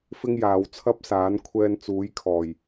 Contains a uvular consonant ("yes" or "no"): no